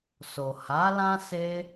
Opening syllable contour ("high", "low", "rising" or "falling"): low